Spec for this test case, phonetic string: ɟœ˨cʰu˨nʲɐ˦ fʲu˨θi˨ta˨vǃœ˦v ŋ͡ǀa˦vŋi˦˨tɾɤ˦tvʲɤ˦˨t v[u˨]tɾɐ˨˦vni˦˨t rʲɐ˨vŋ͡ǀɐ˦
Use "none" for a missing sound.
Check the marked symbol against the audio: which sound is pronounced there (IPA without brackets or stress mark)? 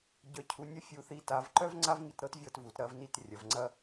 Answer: u˨